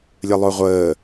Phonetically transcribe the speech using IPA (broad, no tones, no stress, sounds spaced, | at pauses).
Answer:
lʲ ə lˠ o ʁʷ əː